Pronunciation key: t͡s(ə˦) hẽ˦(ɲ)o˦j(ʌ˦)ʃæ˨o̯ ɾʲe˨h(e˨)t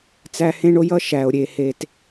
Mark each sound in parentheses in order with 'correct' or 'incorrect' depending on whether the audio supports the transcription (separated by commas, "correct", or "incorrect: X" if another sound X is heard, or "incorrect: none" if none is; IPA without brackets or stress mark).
incorrect: æ˦, incorrect: ɳ, correct, correct